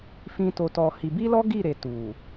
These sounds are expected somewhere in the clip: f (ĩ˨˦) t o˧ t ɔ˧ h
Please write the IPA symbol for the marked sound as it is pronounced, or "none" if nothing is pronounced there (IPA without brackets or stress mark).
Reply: ĩ˦